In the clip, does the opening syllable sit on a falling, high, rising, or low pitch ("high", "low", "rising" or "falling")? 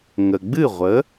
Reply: low